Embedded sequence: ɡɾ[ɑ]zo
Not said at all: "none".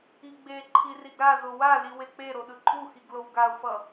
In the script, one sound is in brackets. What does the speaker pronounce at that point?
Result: a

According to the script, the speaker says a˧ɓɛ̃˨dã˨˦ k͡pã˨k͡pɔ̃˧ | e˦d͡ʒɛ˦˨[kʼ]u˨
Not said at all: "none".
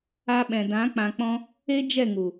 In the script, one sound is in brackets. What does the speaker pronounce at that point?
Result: ŋ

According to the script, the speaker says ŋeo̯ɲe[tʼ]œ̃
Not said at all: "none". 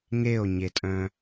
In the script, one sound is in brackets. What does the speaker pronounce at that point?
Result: tʼ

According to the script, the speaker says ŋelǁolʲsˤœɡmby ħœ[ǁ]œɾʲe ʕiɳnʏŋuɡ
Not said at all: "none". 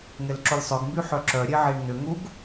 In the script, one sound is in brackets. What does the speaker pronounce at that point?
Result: ǁ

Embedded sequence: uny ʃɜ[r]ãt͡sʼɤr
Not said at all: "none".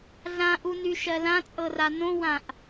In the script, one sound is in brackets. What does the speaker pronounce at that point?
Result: l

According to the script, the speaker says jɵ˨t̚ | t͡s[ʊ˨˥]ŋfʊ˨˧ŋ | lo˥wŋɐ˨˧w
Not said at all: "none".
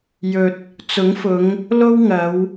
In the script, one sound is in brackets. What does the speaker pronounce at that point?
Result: ʊ˨˥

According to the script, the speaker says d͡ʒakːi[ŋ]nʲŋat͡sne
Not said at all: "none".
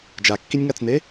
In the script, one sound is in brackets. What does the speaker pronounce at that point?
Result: none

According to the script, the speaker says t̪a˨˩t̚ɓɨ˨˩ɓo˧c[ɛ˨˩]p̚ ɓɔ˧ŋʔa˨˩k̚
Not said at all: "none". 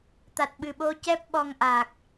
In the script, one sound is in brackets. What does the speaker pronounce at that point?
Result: ɛ˦˥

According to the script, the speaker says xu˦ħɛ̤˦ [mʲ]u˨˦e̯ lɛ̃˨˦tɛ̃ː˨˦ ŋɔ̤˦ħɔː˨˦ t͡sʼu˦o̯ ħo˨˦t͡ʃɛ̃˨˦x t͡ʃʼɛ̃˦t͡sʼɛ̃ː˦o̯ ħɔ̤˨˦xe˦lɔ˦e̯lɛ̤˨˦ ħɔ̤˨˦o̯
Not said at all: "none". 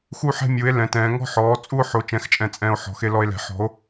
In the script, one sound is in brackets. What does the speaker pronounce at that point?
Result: mʲ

